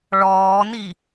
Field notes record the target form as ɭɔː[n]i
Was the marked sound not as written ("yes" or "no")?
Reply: no